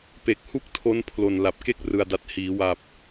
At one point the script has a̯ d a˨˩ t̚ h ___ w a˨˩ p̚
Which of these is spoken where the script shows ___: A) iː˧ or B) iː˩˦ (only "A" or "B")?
B